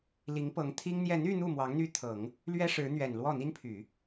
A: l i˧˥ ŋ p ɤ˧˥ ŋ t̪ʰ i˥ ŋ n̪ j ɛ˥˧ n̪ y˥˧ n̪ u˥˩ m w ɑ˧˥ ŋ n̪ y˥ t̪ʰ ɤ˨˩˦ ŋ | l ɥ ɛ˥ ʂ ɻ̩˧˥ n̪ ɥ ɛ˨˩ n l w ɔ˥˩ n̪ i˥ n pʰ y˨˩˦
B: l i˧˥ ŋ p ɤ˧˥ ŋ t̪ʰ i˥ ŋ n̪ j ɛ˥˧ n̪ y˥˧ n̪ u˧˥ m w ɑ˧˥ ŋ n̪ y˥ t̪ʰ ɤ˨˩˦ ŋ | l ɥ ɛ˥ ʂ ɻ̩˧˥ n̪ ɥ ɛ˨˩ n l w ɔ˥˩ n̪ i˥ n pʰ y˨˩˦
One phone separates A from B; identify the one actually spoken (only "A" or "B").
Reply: A